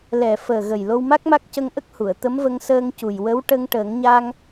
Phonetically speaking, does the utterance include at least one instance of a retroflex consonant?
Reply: yes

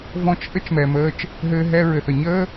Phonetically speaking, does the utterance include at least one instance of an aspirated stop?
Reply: no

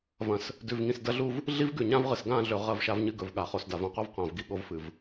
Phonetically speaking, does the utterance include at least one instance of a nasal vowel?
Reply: yes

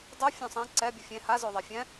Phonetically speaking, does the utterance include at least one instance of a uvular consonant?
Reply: no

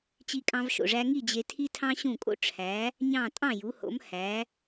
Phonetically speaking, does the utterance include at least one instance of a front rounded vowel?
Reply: no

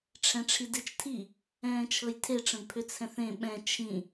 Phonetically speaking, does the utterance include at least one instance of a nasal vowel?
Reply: yes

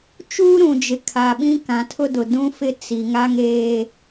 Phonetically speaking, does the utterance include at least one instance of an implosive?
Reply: yes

